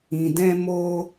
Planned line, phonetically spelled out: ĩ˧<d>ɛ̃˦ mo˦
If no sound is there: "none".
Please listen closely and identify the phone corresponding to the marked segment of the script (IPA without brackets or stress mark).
d